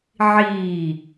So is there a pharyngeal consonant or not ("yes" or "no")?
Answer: yes